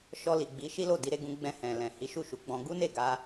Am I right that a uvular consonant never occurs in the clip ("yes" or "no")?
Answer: yes